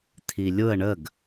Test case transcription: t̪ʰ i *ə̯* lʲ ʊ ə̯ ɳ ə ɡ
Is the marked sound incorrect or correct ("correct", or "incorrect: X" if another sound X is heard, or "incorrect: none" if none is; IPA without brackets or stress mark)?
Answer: incorrect: none